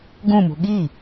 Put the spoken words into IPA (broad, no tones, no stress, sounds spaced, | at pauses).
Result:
ɡ ũ m ṳ ɠ i